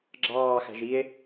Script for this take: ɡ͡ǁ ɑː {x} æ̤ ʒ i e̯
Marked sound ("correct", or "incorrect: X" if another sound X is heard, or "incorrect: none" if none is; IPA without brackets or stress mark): correct